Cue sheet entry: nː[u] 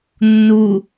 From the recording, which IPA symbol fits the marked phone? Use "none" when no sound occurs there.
u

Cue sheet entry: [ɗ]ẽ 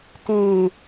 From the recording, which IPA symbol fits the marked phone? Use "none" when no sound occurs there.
t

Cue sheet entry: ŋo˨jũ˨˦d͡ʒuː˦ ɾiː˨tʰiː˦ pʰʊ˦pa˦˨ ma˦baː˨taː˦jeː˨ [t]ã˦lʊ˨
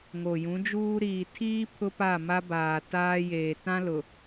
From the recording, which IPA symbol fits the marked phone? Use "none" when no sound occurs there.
t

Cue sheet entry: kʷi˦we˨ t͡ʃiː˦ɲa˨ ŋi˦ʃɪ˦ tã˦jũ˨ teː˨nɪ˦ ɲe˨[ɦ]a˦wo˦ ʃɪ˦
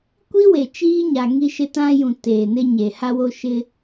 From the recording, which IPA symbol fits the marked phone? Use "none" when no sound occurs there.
h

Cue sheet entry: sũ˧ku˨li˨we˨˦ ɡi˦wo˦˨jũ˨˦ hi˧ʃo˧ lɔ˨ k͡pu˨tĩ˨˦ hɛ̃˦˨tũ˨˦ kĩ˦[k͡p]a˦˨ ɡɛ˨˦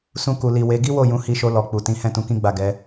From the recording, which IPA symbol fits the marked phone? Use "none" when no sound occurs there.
ɡ͡b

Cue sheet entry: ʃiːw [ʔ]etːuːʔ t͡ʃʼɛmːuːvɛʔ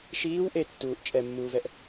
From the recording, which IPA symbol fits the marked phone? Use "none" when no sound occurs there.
ʔ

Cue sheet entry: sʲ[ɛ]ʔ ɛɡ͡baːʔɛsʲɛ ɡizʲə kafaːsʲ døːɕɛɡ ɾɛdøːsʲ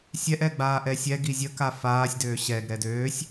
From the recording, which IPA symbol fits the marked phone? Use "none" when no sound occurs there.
ɛ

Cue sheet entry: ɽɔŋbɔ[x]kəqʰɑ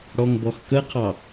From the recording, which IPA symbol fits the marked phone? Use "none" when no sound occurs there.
x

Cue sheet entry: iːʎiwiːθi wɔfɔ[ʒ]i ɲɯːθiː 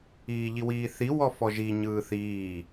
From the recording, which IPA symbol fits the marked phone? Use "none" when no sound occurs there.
ʒ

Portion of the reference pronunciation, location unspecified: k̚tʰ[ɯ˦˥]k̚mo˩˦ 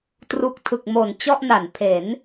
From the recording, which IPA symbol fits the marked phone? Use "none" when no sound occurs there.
ɯ˨˩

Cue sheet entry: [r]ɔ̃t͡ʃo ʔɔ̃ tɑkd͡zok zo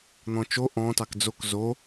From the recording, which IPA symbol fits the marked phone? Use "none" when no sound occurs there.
n̪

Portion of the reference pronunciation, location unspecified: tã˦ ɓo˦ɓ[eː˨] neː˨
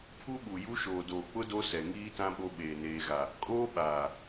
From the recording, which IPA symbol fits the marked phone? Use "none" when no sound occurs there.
eː˨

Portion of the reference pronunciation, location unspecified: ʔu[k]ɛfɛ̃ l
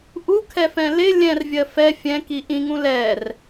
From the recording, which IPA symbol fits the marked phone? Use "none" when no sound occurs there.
kʰ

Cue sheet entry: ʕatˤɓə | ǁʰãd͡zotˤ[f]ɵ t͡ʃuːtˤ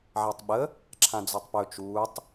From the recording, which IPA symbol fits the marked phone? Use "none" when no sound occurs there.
p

